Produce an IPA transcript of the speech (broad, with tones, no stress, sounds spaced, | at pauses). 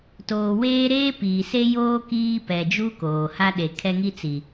t oː˨ w eː˦ ɾ eː˦ p iː˨ s e˦ j oː˦ k iː˦ p ɛ˨ d͡ʒ u˦ k oː˨ h a˦ ɗ e˨ kʰ ɛ˦ ŋ i˦ t͡s i˨